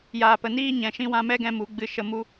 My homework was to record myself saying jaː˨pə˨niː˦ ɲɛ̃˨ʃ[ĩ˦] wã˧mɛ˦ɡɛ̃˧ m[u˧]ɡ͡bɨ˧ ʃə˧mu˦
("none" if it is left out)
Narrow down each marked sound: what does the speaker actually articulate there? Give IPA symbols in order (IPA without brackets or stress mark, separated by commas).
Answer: ĩ˦, u˨˦